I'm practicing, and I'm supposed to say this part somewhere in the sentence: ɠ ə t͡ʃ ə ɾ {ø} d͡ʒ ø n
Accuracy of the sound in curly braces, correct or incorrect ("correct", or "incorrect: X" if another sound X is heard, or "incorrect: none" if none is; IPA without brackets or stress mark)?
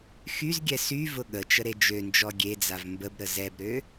incorrect: e